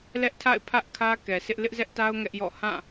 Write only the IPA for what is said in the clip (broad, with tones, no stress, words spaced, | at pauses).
lɛ˦ʔtʰa̰˦˨ɪ̯pʰä˦ʔ kʰä˦kɛ˨sɪ˦ʔ lɪ˦ʔzɛ˦ʔta˦ʊ̯ ŋɛ˦ʔjɔ̰˦˨ hã˦˨